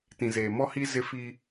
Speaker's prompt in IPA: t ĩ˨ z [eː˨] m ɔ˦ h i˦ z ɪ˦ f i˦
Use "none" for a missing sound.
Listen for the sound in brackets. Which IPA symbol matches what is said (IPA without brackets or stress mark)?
eː˨